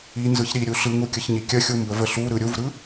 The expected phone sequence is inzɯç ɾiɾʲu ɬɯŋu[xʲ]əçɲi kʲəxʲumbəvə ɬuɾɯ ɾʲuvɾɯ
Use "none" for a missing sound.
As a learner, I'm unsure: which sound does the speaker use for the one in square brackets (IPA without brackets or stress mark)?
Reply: kʲ